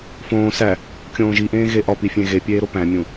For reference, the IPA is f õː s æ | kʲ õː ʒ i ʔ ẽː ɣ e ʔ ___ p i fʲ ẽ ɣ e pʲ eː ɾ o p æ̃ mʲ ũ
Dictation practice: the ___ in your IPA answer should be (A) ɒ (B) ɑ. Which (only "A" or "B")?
A